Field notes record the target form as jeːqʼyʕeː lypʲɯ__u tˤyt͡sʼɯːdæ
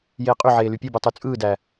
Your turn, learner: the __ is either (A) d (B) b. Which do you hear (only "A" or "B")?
B